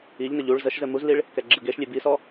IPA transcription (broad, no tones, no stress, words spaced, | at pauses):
iʎnɘʎ uɭ zəʃzɘ muzliɭ | kɛɡ͡ǁɯɡeʃlʲe bisɔ